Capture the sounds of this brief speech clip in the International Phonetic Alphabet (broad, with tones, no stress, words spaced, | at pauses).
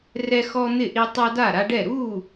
rɛ˦xɔ˦n̪ɪ˥˨ʔi˦ tˤa˦da˥˨ɾa˦ɖɛ˥˨ ɾu˥˨